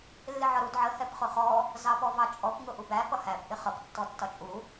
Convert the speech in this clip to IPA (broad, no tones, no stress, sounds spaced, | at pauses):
lː ɪ ʕ ɒ ɾ u d ʕ ə h ɛ p χ ʊ χ ɔ | z ɑ p ɔ v ɑ t͡ʃʼ ɔ p ŋ ʊ ʔ u b æ p ʌ h æ p ʔ ɪ χ ʌ p tː ɔ tː ɒ t͡ʃʼ u